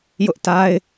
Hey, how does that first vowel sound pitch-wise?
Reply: high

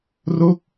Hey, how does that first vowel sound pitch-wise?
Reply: falling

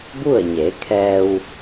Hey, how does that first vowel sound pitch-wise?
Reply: falling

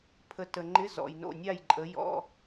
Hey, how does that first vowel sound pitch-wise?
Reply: rising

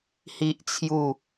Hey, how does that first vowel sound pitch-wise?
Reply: high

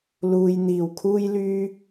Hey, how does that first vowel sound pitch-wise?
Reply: low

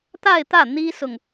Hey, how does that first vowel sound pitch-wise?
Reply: falling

